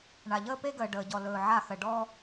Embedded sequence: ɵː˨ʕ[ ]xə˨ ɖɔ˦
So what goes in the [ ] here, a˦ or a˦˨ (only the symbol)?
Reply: a˦˨